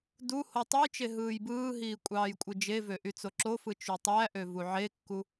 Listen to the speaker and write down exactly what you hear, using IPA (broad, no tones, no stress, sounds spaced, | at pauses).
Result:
d u h o tˤ ɯ j t͡ʃ e ɦ ɯː j b ɯː ɦ iː kʷʼ ɑː j kʷʼ ɯ d͡ʒ e v ø ʔ y t͡s o ǁ o f ɯ t͡ʃ y tˤ æ ʔ ø v u ʕ e kː u